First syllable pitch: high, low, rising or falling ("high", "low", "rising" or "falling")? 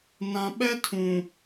low